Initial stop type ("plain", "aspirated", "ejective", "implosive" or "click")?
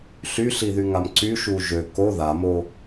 click